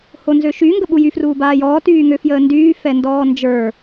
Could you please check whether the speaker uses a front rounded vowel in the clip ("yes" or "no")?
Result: yes